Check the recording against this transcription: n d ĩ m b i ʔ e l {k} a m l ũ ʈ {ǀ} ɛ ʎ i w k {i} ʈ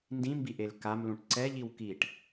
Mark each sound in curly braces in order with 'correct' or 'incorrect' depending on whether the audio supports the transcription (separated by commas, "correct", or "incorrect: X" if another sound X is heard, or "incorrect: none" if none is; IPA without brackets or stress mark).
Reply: correct, correct, correct